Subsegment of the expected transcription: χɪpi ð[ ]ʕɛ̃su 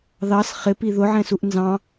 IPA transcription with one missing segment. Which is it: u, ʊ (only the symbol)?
ʊ